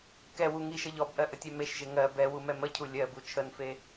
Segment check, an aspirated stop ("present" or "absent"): present